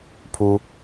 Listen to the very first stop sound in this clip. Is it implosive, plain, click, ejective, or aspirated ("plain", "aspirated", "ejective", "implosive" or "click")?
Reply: aspirated